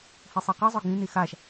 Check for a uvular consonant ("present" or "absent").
present